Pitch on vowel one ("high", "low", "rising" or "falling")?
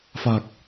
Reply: low